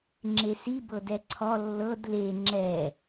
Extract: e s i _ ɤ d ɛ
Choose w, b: b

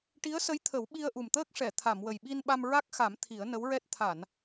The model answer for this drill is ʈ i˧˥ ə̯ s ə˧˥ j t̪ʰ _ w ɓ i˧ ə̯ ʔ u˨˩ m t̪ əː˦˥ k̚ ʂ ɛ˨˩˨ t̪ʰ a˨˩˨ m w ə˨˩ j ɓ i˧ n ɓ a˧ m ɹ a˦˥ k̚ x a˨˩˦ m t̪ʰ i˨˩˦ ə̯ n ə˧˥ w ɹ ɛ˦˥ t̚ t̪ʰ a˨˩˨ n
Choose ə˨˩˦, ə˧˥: ə˨˩˦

